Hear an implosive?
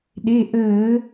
yes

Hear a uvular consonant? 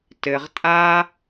yes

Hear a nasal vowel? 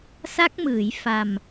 no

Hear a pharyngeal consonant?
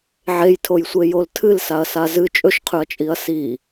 yes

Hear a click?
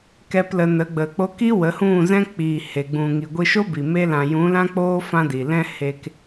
no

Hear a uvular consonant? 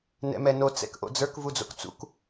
no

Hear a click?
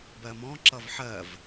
yes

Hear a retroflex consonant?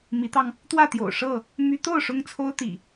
yes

